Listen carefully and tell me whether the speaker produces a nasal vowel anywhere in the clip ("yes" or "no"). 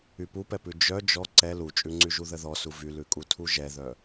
no